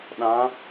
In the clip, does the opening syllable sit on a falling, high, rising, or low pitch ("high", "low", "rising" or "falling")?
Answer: rising